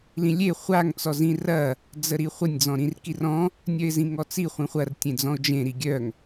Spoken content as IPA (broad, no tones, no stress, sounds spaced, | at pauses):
l ĩ lʲ e χʷ a ŋ t͡s ɔ z ĩ r ɐ | d͡z ə ɾ i χʷ ə nʲ d͡z ɔ̃ ɾ ĩ r k i r ɔ̃ | nʲ œ ɪ̯ z ĩ ŋ ɔ t͡s i χʷ ĩ χʷ ɐ r tʲ ẽ d͡z ɔ̃ ʊ̯ d͡ʒ ẽ ɾ i ɡʲ œ ŋ